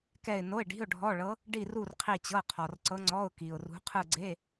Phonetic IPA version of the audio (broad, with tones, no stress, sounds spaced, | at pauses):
k ɛ˥˧ ɪ̯ n o˧˥˧ ɪ̯ ɖ i̤˧˥˧ ʊ̯ ɖʱ ɔ˧˥˧ ɭ ɤ˧˥ | ɖ i˥˧ r u˥˧ r qʰ i˥˧ t͡ɕ ɤ˧˥˧ qʰ ɔ˨ r ǀ ɤ˧˥ ŋ͡ǀ ɔ˧˥˧ ʊ̯ k i˨ ʊ̯ r ṳ˧˥ qʰ ɯ˥˧ ɡ͡ǀ e˧˥˧